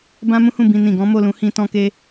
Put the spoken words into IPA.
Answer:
b ã˦ m ũ˦ h ũ˦˨ b ĩ˧ n ĩ˨ ɡ ɔ̃˨˦ m o˦˨ l ũ˨˦ h ĩ˧ t ɔ̃˦ k e˦

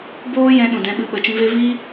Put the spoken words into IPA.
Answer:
b oː˦ j ɛ̃˧ ɗ ũ˨ d ɛ̃˧ ɓ ɨ˧ ɓ ə˨ t͡ʃ ĩ˧ v e˦ v i˦

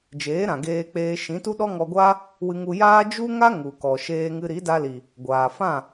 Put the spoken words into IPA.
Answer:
d͡ʒ eː˨˦ ɾ ã˨ ɡ eː˧ k͡p eː˧ ʃ ĩ˨˦ t u˦ ɗ ɔ˦ ŋ ɔ˧ ɡʷ a˦ | w ɨ˧ ŋ u˧ j aː˦ d͡ʒ u˦ ŋ a˦ ŋ u˨ k ɔ˨ ʃ eː˧ ŋ ɨ˧ ɾ i˨˦ d a˧ l i˨ | ɡʷ aː˨ f ã˦˨

